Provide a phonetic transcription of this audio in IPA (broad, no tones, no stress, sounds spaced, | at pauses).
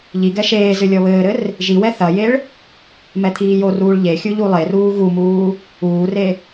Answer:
ʎ i ɡ ɛ ʃ eː z ɨ lʲ ɔ β ɘː ɾ ɘ r | ʒ i w ɛ θ ɐ j e ɭ | m ɛ t̪ʰ iː j o r uː ɭ ʎ e xʲ u ʎ u lˠ e r uː ɣ u m uː | uː r e